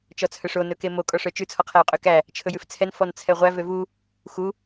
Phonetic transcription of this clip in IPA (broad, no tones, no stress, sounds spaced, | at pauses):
t͡ʃ ɔ t͡sʰ œ ʂ o n ɵ k e m o kʼ ɔ ʂ œ t͡ʃ ʉ t͡sʰ ɔ qʰ æ o̯ qʼ ø k æ | t͡ʃʰ ɵ j ʉ f t͡sʰ ɛ n f ɔ n t͡sʰ ɛ ʁʷ æ v ø v u | x u